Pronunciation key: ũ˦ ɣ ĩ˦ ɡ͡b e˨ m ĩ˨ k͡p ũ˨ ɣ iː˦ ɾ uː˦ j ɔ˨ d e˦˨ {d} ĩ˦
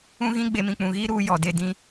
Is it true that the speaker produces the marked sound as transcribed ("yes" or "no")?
yes